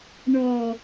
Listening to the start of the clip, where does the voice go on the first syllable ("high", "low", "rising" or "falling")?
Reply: low